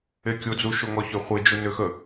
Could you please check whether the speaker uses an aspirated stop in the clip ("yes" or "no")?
no